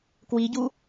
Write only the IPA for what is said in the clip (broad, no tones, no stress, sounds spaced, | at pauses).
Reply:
k w i ɟ u